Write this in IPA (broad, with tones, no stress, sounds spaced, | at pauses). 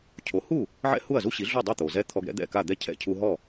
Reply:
cʰ o˩˥ h u˥˩ | ʕ ɛ̰˥ h u˥˩ ɐ̯ z u˥ ɕ i˩˥ ɮ u˥˩ dˤ u˥˩ t̪ o˩ z ɛ˥ t̪ʰ ɔ˧ ɡ ɾ ɛ̰˥ d̪ ɛ̰˥˩ k a˥˩ d̪ ɛ˥˩ cʰ ɛ̰˥˩ cʰ u˧ ɦ ɔ˥˩